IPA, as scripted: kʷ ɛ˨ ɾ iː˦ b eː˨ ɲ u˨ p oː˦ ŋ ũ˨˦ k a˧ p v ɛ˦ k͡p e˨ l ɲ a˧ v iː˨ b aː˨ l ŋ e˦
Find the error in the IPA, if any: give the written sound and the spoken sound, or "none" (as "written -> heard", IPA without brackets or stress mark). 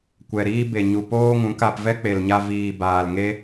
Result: eː˨ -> e˨